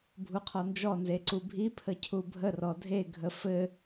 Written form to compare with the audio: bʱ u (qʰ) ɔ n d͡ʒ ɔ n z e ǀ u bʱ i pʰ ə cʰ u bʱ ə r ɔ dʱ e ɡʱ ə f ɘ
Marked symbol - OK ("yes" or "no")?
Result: yes